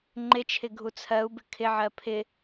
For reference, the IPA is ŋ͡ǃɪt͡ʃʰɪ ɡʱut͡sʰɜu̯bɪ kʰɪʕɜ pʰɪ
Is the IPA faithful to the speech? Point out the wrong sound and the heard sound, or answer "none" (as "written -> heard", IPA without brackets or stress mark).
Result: none